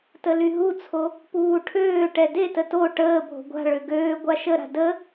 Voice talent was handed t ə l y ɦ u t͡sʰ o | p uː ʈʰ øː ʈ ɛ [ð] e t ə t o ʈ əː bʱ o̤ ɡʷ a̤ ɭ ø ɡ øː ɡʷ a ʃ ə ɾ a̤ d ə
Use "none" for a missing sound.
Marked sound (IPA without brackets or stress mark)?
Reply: d